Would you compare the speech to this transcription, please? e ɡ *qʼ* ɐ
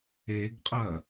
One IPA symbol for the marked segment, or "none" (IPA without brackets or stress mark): qʼ